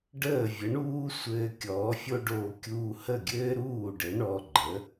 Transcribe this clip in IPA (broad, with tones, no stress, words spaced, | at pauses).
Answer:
ɖəː˥˩vʲə˩˥ɳuː˥ sʷɘː˧ kʲɔː˩˥fʲo˥ɖoː˧ kʲuː˧hə˥˩ɡʲɘː˥ɾuː˥˩ ɖɘ˩˥ɳɔ˧ɡ͡ǃə˩˥